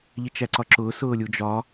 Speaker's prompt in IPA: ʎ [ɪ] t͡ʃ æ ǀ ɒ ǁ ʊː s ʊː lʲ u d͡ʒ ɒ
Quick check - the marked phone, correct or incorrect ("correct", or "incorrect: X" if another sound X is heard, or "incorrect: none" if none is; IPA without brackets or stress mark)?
correct